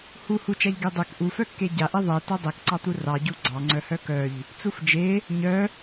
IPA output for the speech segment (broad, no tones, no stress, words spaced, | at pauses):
hu hut͡ʃaʎ ɡedˤek ʔufœkːe ɟaʔe ðˤe tœdˤekǀɑt̪u rɑɟu ɡ͡ǀɑŋ͡ǀœ hœkœʎ | t͡sufd͡ʒe | ɲœ